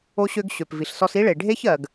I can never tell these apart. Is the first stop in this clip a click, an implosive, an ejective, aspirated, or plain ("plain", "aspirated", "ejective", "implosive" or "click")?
plain